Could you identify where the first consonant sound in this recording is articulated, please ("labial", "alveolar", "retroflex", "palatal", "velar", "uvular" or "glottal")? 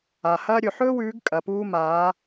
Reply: glottal